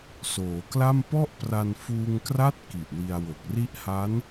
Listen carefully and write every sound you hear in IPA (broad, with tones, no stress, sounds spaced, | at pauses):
s oː˩˦ k l a˥˩ m p ɔ˥˩ ʔ p r a˧ n f uː˧ ŋ k r a˥˩ t̚ k i˨˩ ʔ w i˧ a̯ w o˨˩ k̚ r i˦˥ ʔ h a˦˥ n